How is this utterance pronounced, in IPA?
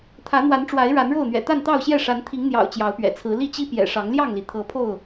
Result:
t̪ʰ ä˨˦ n̪ w a˨˦ n ʈ͡ʂ w a˨˦ ɪ̯ ɻ a˨˦ n ɻ o˥˨ ʊ̯ n̪ ɥ ɛ̰˨˩ t̪ a˥˨ n t̪ ɑ˥˨ ʊ̯ ɕ j ɛ˥˨ ʂ a˨˦ n t̪ʰ i˨˦ ŋ n̪ j ɑ̰˨˩ ʊ̯ t͡ɕ j ɑ˨˦ ʊ̯ p ɥ ɛ̰˨˩ t͡sʰ ɹ̩˨˦ l i˥˨ t͡ɕ i˦ p j ɛ̰˨˩ ʂ ɑ˨˦ ŋ l j ɑ˥˨ ŋ l i˩ t̪ʰ ɤ˨˦ pʰ o˥˨ ʊ̯

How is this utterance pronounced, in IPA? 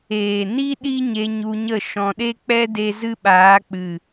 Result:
eː˨ n i˦ ɗ i˦ ɲ e˧ ɲ u˧ ɲ ə˦˨ ʃ ɔ̃˧ ɗ e˦ k͡p ɛ˦ d e˧ z ɨ˦ ɓ aː˨˦ k͡p ɨ˨

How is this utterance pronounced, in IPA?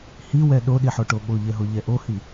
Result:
h i w ɛ ɗ o ɗ i ħ o ʈ o ɓ o ʎ ɛ ɦ o ʎ ɛ ʔ o h i

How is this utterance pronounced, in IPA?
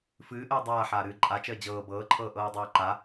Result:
f ɨː ʔ əː dˤ aː ħ aː ɾ ɨː ǃʼ a t͡ʃ əː d͡ʑ ɤː b ɤː ǃʰ ɤː ʔ ɤː dˤ ɤː ǃ a

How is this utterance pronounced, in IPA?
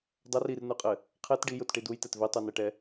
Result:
dˤ ɘ r i r n u qʼ ɘ | qʰ ɛ t ɖ i j u t ʈ i d u j t ɛ t v i tˤ u n ɛ ʈ ɛ

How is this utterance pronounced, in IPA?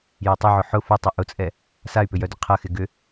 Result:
j ɐ tˤ ʏ ʕ ʊ ħ ʊ f ʊ tˤ ʊ ʔ ʊ t͡sʼ ɛ | s a y̯ p ʏ j œ d ʏ qʰ ɐ x ɪ ɡ ʏ

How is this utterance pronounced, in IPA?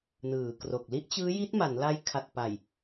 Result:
n ɯː˩˦ k r o˨˩ k̚ l i˦˥ ʔ t͡ɕ ɯː˦˥ j i˦˥ t̚ m a˩˦ n l a˦˥ j kʰ a˨˩ t̚ p a˨˩ j

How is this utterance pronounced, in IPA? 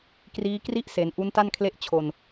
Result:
k r iː˦˥ k r i˥˩ ʔ s e˩˦ n ʔ u˦˥ n t a˥˩ n kʰ l e˥˩ ʔ t͡ɕʰ o˧ n

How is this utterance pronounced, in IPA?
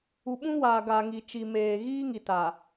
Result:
u˨ ɓ ũ˦ w aː˨ ɡ a˨ ŋ i˨ t͡ʃ i˨ m eː˨ ɣ iː˦ ŋ i˨ t a˨

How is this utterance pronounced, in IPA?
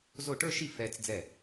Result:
z o˥˩ ʈ ə˞˥˧ ʃ i˥˩ f ɛ˧ t͡s d͡z ɛ˥˩

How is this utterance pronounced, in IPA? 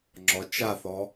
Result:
ŋ͡ǁ ɔ t͡ʃ a θ ɔ

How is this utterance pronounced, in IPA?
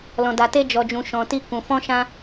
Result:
l ɔ̃˨ d a˨ t e˧ d͡ʒ ɔ˨ d͡ʒ ũ˨ ʃ ɔ̃˨ t i˧ k ũ˨ f ɔ̃˧ ʃ ã˧

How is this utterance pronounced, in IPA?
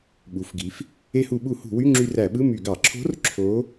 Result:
ɓ u˩˧ f ɡ i˩˧ f | e˧ h u˧˩˧ ɓ u˧˩˧ h ṳ˧˩˧ w y˧˥˧ ŋ͡ǁ y˧ r æ˧˩˧ ɓ ɯ˧˥˧ m y˧˩˧ ɡ ɑ˧˩˧ ǁʰ o̤˧˥ r ǁʰ o˧˥

